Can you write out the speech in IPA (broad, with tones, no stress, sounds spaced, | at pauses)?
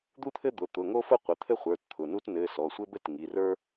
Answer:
d̪ u˥ t̪ʰ ɘ˥ d̪ ʊ˩˧˩ t̪ ʊ˩˧˩ ŋ o˥ f ʊ˥ qʷ ɘ˩˧˩ t̪ʰ ɘ˥ χʷ ə˞˩˧˩ t t̪ʰ ʊ˩˧˩ n u˥ t n ɘ˩˧˩ s ɔ˩˧˩ sʷ ɘ˥ b ɘ˥ t ŋ i˩˧˩ r ə˞˥